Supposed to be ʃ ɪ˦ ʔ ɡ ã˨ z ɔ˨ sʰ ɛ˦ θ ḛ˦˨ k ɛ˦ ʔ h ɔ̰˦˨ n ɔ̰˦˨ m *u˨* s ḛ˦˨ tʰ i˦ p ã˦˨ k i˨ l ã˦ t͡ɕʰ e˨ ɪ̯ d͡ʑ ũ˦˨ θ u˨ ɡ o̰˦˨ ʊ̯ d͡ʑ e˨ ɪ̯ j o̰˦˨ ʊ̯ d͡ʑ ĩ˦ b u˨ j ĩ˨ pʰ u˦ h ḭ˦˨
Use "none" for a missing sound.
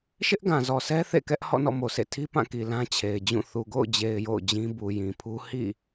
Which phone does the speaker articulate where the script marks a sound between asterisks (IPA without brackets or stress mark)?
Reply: o˨